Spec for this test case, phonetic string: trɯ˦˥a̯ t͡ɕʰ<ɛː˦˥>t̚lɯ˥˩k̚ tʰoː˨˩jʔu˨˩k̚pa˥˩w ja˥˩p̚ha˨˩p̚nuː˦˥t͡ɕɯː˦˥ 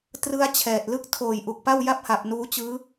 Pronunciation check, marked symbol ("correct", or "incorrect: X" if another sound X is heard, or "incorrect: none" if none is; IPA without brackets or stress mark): incorrect: ɛː˨˩